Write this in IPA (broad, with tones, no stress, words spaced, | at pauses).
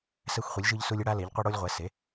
sɛ˦xʷχʷi˨˥lʲʒɯ˦ʎsu˦lʲ ɯ˦ɽa˦le˨˥ʎqʷʌ˦ ɽo˦lʲʁʷɛ˨˥se˨˥